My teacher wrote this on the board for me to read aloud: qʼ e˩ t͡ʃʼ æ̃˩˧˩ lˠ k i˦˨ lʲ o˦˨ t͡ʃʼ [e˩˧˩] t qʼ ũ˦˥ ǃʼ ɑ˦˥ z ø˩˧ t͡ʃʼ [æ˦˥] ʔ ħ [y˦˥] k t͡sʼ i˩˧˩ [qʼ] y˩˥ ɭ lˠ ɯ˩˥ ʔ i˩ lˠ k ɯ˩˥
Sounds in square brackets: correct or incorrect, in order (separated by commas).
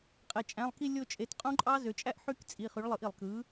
correct, correct, correct, incorrect